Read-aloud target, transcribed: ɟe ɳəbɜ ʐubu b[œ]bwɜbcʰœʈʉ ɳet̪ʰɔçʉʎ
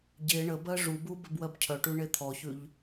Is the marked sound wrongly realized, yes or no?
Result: yes